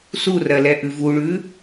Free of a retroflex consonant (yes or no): no